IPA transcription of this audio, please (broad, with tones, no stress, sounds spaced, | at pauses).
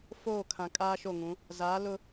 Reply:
f oː˦˨ kʰ ã˨ kʼ aː˦ ʃ o˦˨ ŋ ũ˨˦ | z aː˨˦ l ʊ˦